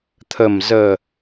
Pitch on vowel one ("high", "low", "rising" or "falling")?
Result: low